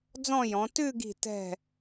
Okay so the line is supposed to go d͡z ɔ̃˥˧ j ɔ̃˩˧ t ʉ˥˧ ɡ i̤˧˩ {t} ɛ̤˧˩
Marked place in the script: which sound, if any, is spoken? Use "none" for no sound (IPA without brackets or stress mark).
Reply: t